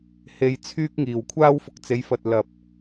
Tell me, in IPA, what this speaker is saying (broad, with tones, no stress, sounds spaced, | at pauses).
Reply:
h e˨ j t͡sʰ yː˧ k̚ ŋ iː˨˩ w kʷʰ aː˧ w f ʊ˨ k̚ t͡s e˨˧ j f ɐ˨ t̚ l ɐ˨ p̚